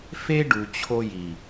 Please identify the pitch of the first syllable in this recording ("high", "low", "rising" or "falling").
high